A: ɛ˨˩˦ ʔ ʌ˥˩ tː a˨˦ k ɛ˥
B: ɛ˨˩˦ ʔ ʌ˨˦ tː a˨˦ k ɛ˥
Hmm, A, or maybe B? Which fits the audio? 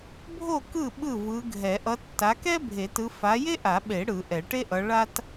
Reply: B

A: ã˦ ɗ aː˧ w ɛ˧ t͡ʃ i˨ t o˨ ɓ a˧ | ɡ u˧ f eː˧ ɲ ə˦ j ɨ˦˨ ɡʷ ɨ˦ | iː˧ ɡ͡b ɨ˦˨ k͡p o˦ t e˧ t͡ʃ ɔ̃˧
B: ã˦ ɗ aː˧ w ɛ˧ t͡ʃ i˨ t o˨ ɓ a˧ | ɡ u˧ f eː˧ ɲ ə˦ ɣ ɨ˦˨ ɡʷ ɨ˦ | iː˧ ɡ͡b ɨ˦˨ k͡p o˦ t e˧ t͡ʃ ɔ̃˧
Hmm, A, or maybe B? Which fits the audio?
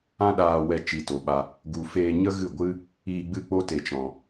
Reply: B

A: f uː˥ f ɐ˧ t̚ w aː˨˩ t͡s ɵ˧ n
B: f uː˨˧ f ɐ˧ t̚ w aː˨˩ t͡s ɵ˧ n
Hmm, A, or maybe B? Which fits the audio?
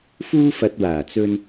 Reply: A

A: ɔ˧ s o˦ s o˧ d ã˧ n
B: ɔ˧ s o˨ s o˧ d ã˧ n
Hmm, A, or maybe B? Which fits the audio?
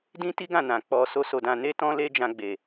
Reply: A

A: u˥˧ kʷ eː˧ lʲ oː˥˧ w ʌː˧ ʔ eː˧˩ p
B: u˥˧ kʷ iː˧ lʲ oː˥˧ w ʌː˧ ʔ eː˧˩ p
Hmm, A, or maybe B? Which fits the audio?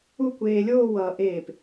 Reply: A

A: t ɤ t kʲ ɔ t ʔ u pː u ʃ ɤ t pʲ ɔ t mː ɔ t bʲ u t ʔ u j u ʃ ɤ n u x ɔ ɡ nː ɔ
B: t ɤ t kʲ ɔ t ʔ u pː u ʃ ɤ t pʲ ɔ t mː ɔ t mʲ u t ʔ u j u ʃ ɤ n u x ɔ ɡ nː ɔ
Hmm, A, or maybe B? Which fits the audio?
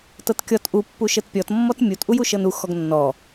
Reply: B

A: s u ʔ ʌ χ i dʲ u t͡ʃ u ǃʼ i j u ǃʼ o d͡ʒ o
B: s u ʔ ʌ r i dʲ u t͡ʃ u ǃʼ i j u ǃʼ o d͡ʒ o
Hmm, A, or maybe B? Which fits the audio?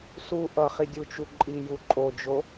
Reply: A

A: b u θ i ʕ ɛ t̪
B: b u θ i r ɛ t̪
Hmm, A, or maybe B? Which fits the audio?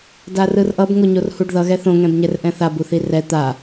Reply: B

